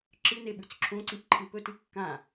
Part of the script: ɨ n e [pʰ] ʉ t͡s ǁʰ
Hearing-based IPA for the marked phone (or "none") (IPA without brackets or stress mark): ɓ